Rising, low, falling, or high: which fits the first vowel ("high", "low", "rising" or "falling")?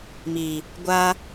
low